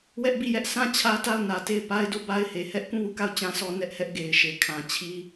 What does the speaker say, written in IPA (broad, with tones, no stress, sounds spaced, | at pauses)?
w ɛ˦ ʔ b i˦˨ j ɛ˦ ʔ sʰ ã˦˨ t͡ɕʰ ä˦ t a˦˨ ʊ̯ n ä˨ t e˦˨ ɪ̯ p a˦ ɪ̯ d o˦˨ b a˦ ɪ̯ h e˨ h ɛ˦ ʔ k ũ˦˨ w u˦˨ k a˦˨ ʊ̯ t͡ɕ ã˦ s ɔ˦ n ɛ˦ ʔ h ɛ˦ ʔ ɡ e˨ ɪ̯ ʃ e˨ kʰ ã˨ t͡ɕʰ i˦